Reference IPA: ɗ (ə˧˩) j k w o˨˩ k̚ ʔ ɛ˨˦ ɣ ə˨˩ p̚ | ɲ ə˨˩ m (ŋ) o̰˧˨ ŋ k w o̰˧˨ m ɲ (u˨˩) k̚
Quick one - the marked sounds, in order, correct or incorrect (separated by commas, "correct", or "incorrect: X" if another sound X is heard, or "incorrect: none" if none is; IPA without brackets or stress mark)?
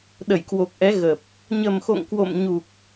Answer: correct, incorrect: x, correct